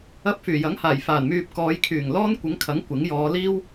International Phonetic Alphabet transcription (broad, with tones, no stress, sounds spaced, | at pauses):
ɐ˧ p̚ f yː˨˩ j ɐ˨˥ ŋ h aː˨˩ j f aː˨˩ n m yː˧ p̚ k ɔː˨˧ j kʰ yː˨˩ ŋ l ɔː˥ n kʷ ɪ˨˥ ŋ kʰ ɐ˨˥ ŋ kʷ ɪ˨˥ ŋ j ɔː˨˧ l iː˥ w